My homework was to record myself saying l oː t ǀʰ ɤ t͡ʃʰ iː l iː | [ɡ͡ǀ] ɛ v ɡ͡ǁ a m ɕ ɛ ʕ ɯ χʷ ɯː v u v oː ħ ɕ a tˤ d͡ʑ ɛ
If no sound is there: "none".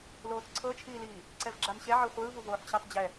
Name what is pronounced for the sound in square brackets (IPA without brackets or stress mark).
ǀ